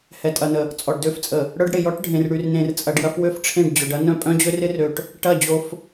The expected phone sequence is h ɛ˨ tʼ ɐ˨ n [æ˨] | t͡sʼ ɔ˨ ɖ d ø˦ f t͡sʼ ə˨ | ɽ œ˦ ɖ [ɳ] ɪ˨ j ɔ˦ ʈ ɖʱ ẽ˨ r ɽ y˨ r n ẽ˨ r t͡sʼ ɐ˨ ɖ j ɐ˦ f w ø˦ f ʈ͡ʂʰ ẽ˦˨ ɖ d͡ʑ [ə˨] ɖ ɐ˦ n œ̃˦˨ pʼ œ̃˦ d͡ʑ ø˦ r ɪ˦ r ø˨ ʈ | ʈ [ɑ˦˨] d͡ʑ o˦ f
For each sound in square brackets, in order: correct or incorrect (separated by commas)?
incorrect, incorrect, incorrect, incorrect